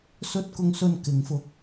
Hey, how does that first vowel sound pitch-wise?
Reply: rising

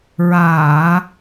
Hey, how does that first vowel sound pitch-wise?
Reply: low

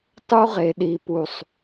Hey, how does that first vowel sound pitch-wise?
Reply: high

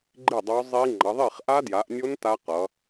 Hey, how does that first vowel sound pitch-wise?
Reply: falling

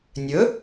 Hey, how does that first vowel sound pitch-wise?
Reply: rising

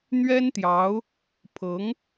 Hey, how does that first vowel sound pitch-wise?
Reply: high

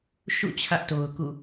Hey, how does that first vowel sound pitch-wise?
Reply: falling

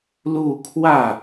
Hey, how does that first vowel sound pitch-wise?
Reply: falling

